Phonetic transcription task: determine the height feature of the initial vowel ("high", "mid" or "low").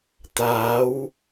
low